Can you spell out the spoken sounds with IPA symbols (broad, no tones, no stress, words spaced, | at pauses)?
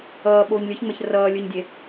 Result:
ʌː ɓoːɲlʲɯçŋ͡mɛç rʌː lʲɯɲdʲe